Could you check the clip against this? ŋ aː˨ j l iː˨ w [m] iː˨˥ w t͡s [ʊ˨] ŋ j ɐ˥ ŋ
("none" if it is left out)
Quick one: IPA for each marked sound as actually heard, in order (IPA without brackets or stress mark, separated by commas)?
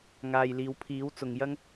pʰ, ʊ˨